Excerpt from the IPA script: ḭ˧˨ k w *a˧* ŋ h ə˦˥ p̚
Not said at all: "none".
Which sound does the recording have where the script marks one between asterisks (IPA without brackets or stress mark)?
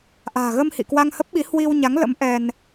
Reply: a˧